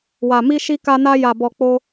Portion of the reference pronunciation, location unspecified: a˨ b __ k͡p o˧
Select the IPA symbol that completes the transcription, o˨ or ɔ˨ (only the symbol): ɔ˨